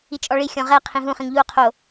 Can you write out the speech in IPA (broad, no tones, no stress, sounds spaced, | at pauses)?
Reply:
i t͡ʃʼ ɔ ɭ i xʲ ɔ̃ ʁ ɛ qʰ ĩ ɦ ũ χ ĩ ŋ ʎ u o̯ qʰ o